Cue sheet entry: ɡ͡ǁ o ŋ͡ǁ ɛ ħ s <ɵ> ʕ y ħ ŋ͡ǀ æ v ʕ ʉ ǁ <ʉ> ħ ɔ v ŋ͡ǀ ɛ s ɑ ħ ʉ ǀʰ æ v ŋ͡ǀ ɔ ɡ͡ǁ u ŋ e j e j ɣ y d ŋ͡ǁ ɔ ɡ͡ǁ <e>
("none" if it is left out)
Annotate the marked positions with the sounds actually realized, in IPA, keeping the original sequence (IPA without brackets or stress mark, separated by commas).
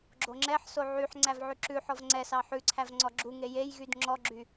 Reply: o, ʉ, y